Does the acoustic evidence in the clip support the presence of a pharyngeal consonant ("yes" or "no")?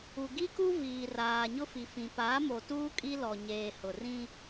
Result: no